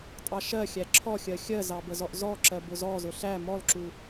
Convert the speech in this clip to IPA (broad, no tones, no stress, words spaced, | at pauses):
tʼɑʃɜxʲæ ǁʰɔxʲɜ xʲɜzɑ bəzɔʔzɔǁɜ bʊzɔzʊ ɬæ mɔlǁu